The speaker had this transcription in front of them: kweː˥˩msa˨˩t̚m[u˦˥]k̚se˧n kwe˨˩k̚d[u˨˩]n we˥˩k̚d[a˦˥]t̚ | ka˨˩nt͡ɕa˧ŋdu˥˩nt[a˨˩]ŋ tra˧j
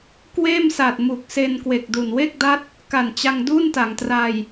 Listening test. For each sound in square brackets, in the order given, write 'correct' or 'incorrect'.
incorrect: u˨˩, correct, correct, incorrect: a˩˦

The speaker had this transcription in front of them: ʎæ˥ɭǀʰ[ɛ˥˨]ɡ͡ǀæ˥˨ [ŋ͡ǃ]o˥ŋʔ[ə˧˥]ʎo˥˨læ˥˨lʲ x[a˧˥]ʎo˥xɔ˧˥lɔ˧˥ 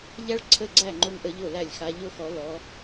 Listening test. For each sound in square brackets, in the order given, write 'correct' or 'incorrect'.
incorrect: ə˥˨, correct, correct, correct

